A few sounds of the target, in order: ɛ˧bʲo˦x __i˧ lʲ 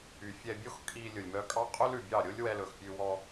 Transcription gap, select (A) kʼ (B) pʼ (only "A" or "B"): A